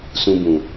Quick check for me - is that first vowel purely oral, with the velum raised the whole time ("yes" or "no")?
no